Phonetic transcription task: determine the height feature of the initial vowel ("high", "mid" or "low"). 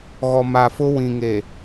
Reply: mid